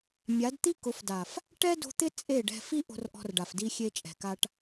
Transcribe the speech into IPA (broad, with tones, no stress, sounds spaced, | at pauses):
mʲ a˨˦ d t̪ i˦ k ʊ˨˦ f d a˨ f | ʈ ɛ˦ d o̤˧ t̪ ɪ˦ t͡sʼ e˦˨ ɖ ɛ̤˧ f i˦ ʔ o̤˧ r ʔ ɔ̤˧ r ɖ a˨ f d i˧ xʲ e˧ t͡ʃʼ ɛ̤˨ k a˧ ʈ